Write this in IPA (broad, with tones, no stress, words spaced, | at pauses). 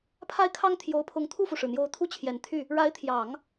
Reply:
pʰa˥˩ɪ̯kʰɑ˥ŋ t̪ʰjo˧˥ʊ̯pʰʊ˧˥ŋ t̪ʰu˥˩fu˩ʂɻ̩˩n̪jo˧˥ʊ̯ t̪ʰu˥˩t͡ɕʰjɛ˨˩nt̪ʰy˥˩ | ɻa˧˥ɪ̯t̪ʰjɑ˨˩˦ŋ